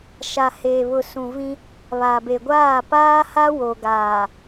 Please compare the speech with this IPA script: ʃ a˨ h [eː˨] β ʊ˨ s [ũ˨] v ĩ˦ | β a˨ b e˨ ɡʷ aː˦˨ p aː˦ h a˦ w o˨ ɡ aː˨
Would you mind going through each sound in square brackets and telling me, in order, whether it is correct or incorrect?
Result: correct, correct

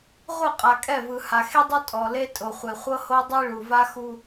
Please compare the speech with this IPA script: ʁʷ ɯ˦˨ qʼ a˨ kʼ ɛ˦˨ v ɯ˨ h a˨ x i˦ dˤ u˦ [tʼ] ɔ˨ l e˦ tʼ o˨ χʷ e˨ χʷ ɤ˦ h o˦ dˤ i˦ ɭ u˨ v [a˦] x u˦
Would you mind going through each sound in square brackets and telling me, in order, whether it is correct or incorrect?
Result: correct, correct

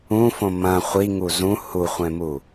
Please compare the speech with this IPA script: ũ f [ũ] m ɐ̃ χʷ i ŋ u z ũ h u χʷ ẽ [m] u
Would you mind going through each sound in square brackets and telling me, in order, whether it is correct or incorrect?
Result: incorrect: õ, correct

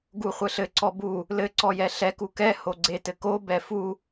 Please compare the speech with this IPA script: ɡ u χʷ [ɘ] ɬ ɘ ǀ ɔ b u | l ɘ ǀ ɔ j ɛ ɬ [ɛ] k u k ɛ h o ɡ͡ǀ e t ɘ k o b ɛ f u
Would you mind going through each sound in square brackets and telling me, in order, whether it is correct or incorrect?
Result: correct, correct

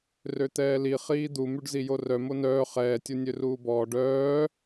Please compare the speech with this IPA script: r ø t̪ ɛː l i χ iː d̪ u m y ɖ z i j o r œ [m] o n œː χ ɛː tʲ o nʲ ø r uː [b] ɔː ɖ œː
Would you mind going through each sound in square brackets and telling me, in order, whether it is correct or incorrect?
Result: correct, correct

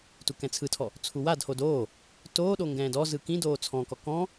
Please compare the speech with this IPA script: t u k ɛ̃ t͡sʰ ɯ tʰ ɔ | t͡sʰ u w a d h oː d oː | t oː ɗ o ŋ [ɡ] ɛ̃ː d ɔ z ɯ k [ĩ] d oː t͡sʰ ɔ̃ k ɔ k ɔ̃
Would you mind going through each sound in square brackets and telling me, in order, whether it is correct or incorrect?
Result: correct, correct

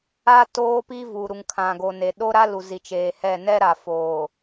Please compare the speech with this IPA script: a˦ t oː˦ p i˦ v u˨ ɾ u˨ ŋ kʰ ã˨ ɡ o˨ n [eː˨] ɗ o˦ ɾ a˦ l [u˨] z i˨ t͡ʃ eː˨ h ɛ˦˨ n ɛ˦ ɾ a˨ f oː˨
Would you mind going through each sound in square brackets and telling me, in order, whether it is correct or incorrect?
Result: incorrect: e˨, correct

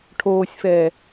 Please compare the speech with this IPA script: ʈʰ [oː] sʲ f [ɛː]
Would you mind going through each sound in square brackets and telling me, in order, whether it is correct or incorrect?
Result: correct, correct

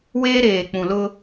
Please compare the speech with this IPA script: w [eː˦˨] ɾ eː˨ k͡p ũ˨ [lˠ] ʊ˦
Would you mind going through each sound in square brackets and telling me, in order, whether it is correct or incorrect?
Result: incorrect: eː˦, incorrect: l

